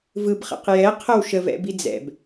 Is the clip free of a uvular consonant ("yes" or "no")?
no